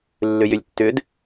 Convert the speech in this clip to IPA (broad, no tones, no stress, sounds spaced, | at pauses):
lː ʏ j ʏ lʲ tː ʏ d